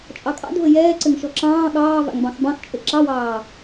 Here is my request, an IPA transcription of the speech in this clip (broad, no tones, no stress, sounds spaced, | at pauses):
t͡ʃʼ ɑ kʼ ɑ̰ d v ɘ j ɛː ǀ ɘ ŋ ʃ ɔ ǁ ɑ̃ː ɠ ɑː v a̰ ŋ b ɑ̃ x b ɑ̃ x t͡ʃʼ ɘ ǁ ɑ w ɑː